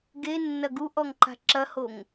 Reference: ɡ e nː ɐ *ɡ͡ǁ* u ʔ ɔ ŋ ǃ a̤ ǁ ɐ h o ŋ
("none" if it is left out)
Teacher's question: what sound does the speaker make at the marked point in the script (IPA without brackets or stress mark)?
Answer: ɡ